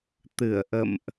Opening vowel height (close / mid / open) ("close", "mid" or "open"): close